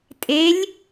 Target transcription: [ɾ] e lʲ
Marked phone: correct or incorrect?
incorrect